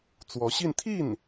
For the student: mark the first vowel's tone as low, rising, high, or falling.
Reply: rising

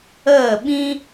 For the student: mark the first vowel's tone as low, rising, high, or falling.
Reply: falling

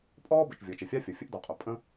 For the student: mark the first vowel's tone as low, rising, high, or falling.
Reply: high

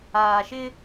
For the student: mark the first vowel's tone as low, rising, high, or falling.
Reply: low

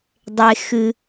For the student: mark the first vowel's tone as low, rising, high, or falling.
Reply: low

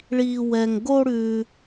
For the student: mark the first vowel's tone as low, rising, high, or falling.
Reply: high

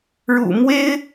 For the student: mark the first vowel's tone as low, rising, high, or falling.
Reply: low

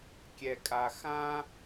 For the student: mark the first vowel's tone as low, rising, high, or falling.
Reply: low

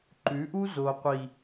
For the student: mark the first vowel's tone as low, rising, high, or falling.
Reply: rising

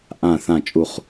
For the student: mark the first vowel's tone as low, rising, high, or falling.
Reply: falling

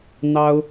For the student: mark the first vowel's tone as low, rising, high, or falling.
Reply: high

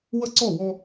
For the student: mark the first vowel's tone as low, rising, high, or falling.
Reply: high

